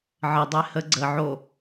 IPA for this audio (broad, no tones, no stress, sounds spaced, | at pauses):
ʕ ə dˤ e h ə ɡ͡ǀ ə ʕ o